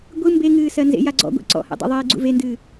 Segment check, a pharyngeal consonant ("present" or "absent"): absent